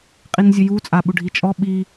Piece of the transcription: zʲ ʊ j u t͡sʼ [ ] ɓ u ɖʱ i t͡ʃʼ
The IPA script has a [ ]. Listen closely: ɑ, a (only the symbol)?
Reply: a